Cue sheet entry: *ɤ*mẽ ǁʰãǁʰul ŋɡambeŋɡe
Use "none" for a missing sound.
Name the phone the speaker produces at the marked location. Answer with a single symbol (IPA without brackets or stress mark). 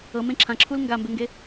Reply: ɤ